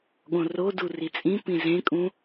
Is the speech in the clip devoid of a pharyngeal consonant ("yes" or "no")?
yes